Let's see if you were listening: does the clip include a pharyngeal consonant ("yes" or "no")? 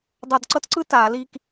no